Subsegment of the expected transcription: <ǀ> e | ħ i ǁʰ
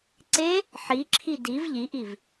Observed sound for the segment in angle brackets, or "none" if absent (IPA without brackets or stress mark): ǀ